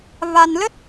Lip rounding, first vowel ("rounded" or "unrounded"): unrounded